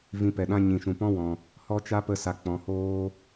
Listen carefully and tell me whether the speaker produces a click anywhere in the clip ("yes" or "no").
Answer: no